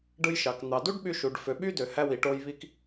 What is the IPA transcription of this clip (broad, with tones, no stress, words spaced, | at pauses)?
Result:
ɖɯ˧jʃɑ˩k n̪ɑ˩ du˥ɖɓy˧ ʃu˩ɖfø˩ɓy˥ dø˩hæ˧wi˩ʈo˧j βi˧k